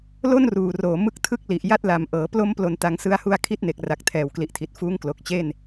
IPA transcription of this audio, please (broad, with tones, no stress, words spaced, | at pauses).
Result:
lo˥˩n ruː˨˩roː˨˩mɯ˦˥k̚ tʰɯ˥˩k̚li˨˩ʔ ja˥˩t̚la˨˩m ʔɤː˩˦plo˦˥m plo˧nta˧ŋ sɯ˦˥a̯hu˦˥a̯ kʰi˦˥t̚ne˨˩k̚ra˨˩k̚ tʰɛː˨˩wkli˨˩ʔtʰi˨˩t̚fuː˦˥ŋ klo˨˩k̚t͡ɕe˥˩n